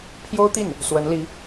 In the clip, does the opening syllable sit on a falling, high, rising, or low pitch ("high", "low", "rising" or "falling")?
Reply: high